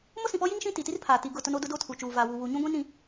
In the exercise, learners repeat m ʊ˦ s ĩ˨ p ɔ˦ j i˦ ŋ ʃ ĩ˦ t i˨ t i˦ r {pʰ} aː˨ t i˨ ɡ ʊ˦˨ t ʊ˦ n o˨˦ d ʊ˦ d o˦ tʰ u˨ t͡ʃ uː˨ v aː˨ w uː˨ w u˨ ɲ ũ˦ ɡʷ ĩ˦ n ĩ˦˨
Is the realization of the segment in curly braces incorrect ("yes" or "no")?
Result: no